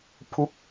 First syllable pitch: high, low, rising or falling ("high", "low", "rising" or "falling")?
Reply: falling